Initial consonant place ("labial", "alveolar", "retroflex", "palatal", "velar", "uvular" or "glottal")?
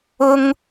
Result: velar